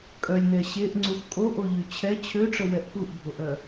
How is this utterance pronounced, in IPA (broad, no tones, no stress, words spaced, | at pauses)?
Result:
kʼœlʲnɛ ɕeʔŋ͡ǀux kʼoʔoʎy t͡ɕʰɛ t͡ɕʰøʈ͡ʂəwɛʔ puʔbʱoʔœ